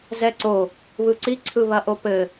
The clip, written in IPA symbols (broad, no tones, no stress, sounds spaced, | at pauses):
z ɛ ǀ o | β ɯ ǀ i ǀʰ ɯ β ɐ ʔ o p ɘ